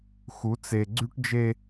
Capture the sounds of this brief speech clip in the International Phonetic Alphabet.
x u˨˦ t͡s e˨ ɡ͡ǀ y˦ ʈ d͡ʒ e˦

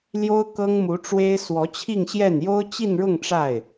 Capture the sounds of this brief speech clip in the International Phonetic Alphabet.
l j o˥ ʊ̯ k ɤ˥ ŋ m u˧˥ ʈ͡ʂ w e˥ ɪ̯ s w ɔ˧˥ t͡ɕʰ i˥˧ ŋ ɕ j ɛ˥˩ n j o˥ ʊ̯ t͡ɕ i˥˧ n ɻ ʊ˥˧ ŋ ʈ͡ʂ a˥˩ ɪ̯

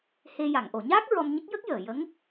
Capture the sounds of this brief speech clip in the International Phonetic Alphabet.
h e˧ j a˨˩˨ ŋ ʔ o˨˩˨ ɲ aː˦˥ k̚ ɹ ɔ˧ m ɲ ə˦˥ k̚ j ə˦˥ k̚ j əː˨˩˨ j ə˧˥ ŋ

